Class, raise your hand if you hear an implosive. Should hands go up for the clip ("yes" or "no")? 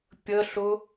no